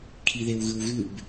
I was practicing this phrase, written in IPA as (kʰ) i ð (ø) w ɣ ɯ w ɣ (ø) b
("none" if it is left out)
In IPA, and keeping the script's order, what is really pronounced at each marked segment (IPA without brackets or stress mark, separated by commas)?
kʰ, e, ʉ